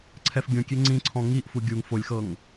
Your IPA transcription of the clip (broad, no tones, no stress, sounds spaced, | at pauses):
ǀʰ ɛ f ɡʲ õ kʲ e ŋ͡ǀ ĩ ǀʰ ɔ̃ ŋ i ʔ f u ɡʲ u ŋ f o lʲ x ɤ ŋ